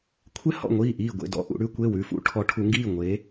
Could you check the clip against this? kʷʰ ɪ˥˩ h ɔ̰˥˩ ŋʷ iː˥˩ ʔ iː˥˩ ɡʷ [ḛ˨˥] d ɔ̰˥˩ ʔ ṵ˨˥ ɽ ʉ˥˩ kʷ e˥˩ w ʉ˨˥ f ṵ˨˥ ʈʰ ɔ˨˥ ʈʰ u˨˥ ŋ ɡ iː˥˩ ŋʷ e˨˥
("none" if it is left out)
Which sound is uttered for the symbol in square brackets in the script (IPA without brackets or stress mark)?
ḛ˥˩